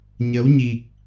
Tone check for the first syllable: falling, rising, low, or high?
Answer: rising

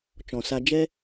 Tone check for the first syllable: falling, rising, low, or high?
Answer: low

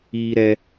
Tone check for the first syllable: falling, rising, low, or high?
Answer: high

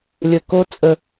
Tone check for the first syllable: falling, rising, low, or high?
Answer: low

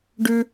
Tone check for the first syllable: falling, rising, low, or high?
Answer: high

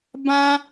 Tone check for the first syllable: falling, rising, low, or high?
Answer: high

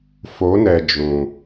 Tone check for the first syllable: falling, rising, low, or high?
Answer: rising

